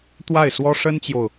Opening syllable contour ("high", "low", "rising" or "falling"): falling